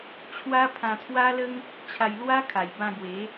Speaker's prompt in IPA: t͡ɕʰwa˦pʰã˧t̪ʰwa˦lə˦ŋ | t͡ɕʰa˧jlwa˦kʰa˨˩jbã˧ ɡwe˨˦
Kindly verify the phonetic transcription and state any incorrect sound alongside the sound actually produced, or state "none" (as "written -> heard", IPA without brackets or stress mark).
none